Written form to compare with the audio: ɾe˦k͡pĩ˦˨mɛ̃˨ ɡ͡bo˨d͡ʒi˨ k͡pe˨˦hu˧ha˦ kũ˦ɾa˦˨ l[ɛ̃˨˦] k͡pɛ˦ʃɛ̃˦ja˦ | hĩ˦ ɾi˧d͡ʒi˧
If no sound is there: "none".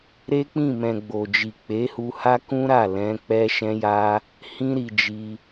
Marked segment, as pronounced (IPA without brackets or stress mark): ɛ̃˨˦